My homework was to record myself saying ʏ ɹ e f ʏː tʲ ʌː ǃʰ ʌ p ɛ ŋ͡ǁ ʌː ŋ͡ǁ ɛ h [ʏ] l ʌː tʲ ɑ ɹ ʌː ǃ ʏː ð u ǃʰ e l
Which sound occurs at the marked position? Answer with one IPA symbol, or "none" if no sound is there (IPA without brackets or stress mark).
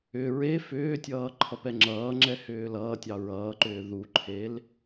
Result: ʏː